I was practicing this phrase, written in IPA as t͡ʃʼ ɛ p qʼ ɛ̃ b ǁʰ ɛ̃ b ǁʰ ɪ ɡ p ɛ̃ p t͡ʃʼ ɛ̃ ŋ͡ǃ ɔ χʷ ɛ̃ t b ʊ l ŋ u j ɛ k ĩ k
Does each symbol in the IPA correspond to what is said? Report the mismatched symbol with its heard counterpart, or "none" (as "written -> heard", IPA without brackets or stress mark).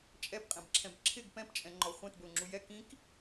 ŋ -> ŋ͡ǁ